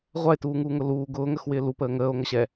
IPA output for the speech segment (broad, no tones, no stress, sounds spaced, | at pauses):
ʁʷ a e̯ t uː ŋ uː ŋ ʊ l uː ɡ ʊː ŋ ə x w ɪː l u p əː ŋ əː o̯ ŋ ə ɕ ɛ